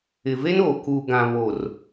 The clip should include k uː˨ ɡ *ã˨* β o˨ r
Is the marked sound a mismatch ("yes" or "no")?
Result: no